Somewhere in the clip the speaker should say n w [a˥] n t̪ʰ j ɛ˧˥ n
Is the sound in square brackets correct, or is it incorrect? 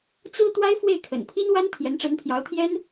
correct